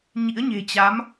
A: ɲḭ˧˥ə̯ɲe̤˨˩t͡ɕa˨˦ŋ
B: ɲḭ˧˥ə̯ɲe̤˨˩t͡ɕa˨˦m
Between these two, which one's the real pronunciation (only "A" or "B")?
B